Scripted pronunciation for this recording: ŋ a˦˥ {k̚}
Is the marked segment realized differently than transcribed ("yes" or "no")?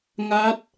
yes